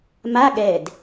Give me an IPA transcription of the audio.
m a ɠ ɛ d

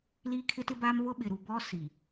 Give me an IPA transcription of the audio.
l iː˦ kʰ ɪ˦ t ɪ˦ b a˦ m β ʊ˦ ɓ ɪ˨ ɾ u˨ b ɔ˦ s i˨

